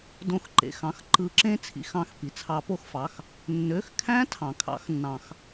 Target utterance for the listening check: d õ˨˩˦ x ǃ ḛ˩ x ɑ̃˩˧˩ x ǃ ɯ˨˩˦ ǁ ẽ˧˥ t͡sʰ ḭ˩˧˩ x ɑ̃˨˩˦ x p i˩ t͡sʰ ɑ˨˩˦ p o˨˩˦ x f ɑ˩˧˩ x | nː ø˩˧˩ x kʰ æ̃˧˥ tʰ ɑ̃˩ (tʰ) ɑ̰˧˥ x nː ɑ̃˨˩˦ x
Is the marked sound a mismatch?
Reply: yes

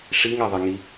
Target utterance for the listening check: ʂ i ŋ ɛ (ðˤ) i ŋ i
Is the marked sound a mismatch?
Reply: no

